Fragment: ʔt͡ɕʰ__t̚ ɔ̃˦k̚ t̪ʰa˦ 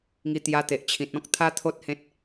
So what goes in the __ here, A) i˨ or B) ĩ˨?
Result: B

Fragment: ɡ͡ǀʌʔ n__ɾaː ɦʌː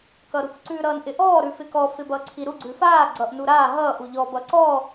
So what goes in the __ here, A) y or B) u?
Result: B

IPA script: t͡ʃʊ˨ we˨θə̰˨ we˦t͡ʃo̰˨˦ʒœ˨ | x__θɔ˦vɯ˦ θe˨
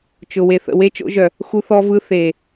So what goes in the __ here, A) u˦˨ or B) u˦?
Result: B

